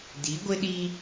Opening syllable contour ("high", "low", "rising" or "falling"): rising